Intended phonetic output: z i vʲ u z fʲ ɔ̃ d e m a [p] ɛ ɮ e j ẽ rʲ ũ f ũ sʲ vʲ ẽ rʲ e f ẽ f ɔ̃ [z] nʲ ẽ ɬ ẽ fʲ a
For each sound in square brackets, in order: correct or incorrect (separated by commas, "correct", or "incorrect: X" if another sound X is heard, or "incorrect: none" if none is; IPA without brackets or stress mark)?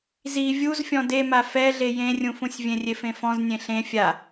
incorrect: f, correct